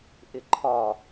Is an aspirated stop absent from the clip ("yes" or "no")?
no